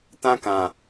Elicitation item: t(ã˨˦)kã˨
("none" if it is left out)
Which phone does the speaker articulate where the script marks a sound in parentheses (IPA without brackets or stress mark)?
ã˦